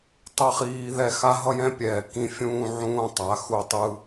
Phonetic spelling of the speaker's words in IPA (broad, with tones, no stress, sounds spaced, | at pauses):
tˤ ʌ˦ χ iː˧ ð ɛ˧ x a˦ ɦ ʌ˦ j ɛ̃˦ pʲ ɛː˨ k ĩ˦ fʲ ũː˦ ʕ ũː˦ tˤ a˨˦ x u˧ tˤ ɯ˧